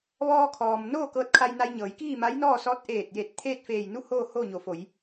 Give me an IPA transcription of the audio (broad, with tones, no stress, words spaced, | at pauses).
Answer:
ʋɔː˧kʰɔː˩m noː˥˨kɤː˧t̚kʰa˧j na˧jɲɤː˩˧j kiː˥˨ma˧˥jnɔː˥˨sɔː˧˥t̚ ʔeː˧˩t̚je˧˩t̚ t̪ʰeː˥˨t̚feː˧˩jnu˥˨hoː˥˨ ho˥˨ɲo˩˧fo˩˧j